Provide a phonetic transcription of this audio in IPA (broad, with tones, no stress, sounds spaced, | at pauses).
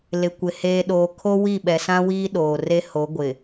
l ɪ˨ kʷ ɪ˨ h eː˨ ɗ oː˨ kʰ o˦ w i˦˨ ɓ ɛ˨ s ã˦ w iː˦ ɗ oː˨ r e˦ h o˨˦ ɡʷ ɪ˨